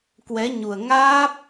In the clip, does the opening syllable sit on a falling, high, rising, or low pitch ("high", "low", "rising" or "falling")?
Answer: rising